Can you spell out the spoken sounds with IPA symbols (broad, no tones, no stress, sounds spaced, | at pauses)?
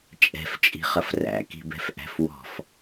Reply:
t͡ʃʼ ɛ̤ f t͡ʃʼ i̤ χ ʌ f r æ̰ k i̤ b ɛ̤ f ʔ æ̤ f w ɔ̤ f